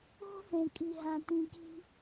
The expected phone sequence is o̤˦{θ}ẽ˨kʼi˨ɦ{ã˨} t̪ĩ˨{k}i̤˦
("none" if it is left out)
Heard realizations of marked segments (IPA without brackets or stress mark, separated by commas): θ, ã˨, k